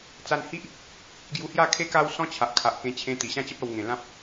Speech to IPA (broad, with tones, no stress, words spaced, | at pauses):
t͡sa˧nhi˦ʔ | ɡju˧hja˥˧ kʰe˦ka˦wsɔ̃˦t͡ɕʰa˨ʔ kʰa˨ʔkẽ˧t͡ɕʰẽ˧ t̪i˨˩ɕã˥˧t͡ɕə˦p̚a˧w ŋẽ˨˩lã˦p̚